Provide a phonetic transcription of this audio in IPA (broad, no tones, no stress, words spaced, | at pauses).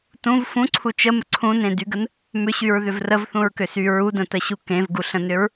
tũv fũǀʰu t͡ʃəmə ǀʰũnẽdyɡən | mʏɕyɹðʏv rəvθũɹkʏsy ɹudə̃təɕu kẽvɡuɬə̃nʏɹ